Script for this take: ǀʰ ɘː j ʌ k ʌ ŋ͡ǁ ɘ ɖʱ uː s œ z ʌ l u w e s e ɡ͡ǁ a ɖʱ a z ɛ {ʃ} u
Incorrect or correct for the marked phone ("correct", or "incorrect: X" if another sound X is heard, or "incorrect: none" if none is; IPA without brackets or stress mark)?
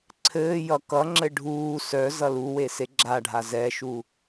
correct